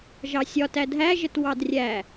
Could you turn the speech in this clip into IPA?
ʒ ɑ sʲ ɒ t æ dʱ æ ʒ ə t w ɑ d rʲ æ

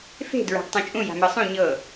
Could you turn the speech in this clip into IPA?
f e̤ d ɹ a̤ ɡ tˤ ũ t͡ʃʼ ũ j a̤ m ɤ sˤ ũ ɲ ɤ

